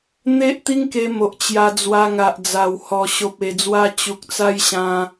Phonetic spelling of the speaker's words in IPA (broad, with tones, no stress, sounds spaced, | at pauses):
n̪ e˦ ʔ t̪ i˦ ŋ k e˧ m o˨ ʔ t͡ɕ j a˧ d͡z w a˧ ŋ a˨ ʔ d͡z a˨˩ w h ɔ˨˩ ɕ o˨ p̚ e˨˩ d͡z w a˧ t͡ɕ u˨ k̚ t͡s a˦ j ɕ ã˧